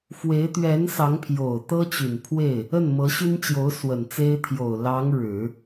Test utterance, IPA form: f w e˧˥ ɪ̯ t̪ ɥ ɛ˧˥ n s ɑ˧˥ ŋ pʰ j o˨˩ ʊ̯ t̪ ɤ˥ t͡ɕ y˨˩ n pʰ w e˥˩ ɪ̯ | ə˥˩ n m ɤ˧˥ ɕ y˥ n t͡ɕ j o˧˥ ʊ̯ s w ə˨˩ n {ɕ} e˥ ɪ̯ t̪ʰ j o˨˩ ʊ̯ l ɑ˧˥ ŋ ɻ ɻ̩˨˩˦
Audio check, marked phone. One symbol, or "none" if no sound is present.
t͡s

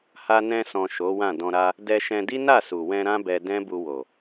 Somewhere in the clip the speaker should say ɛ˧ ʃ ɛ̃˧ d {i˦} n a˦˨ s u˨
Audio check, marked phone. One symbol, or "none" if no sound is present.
i˦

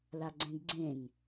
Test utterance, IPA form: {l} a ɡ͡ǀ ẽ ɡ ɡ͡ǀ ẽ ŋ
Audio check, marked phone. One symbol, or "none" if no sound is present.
l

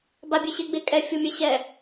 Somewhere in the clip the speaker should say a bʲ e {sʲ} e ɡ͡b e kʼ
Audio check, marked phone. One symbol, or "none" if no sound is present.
ɕ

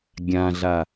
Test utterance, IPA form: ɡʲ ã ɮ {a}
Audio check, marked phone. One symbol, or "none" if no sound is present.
a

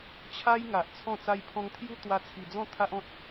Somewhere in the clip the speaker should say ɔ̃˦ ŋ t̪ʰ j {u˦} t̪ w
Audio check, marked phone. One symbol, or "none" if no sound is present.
u˦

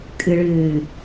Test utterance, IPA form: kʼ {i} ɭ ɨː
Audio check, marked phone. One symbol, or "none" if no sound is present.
ɨ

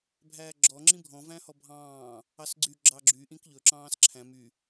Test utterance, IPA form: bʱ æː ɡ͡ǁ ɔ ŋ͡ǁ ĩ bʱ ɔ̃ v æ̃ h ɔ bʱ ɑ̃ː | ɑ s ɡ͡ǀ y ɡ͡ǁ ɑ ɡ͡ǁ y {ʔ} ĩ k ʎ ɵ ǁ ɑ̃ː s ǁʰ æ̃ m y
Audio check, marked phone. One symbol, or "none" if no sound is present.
ʔ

